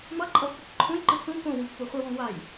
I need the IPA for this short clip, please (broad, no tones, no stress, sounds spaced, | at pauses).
m ʌ ǃʼ ʌ v tʷ ʌ k ǃʰ ũ j ǃ ɯ t͡s ũ k õ w ũ pː u χʷ ɯ w õ w a j